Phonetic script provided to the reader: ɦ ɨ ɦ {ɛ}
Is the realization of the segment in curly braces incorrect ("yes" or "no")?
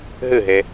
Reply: yes